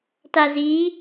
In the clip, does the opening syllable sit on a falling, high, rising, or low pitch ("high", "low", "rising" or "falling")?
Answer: low